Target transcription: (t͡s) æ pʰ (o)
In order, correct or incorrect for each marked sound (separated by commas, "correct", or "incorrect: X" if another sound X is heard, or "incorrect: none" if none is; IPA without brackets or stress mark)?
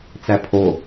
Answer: correct, correct